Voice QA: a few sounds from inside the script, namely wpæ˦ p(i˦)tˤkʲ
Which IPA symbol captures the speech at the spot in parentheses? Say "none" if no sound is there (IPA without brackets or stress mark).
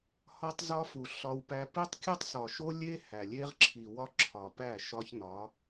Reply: i˦